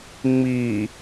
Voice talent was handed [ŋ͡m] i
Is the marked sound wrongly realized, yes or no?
no